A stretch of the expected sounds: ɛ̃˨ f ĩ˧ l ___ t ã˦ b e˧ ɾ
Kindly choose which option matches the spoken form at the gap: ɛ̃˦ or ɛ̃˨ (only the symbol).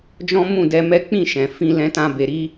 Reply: ɛ̃˦